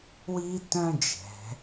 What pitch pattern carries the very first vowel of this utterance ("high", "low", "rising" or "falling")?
high